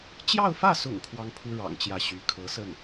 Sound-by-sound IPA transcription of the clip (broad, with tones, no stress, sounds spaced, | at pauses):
t͡ɕ j ɑ˥˧ ʊ̯ f ä˥˩ s ʊ̰˨˩ ŋ kʰ w ɑ˥ ŋ pʰ u˥ ɻ ɑ̰˨˩ ŋ t͡ɕ j ä˥˩ ɕ y˧˥ kʰ ɤ˧˥ s ə˥˩ n